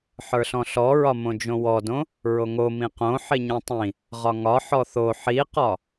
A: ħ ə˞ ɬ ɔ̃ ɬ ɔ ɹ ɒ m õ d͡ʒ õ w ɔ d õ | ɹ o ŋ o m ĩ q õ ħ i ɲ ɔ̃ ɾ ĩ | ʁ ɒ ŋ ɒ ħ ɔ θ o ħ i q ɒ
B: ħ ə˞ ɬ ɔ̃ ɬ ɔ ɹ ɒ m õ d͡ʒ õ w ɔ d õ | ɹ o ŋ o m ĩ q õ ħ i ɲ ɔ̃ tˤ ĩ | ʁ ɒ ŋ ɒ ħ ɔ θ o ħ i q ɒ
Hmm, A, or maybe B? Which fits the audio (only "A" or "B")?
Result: B